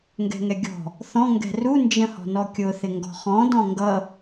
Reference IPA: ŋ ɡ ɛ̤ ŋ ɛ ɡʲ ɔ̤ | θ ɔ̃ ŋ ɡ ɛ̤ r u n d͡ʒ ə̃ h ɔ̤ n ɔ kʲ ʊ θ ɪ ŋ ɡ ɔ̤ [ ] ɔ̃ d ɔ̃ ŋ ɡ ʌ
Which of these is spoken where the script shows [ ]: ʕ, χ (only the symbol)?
χ